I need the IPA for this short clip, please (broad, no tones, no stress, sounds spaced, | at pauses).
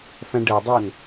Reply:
f æ̃ ɖ ə dˤ o n